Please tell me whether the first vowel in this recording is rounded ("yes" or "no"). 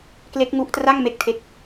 no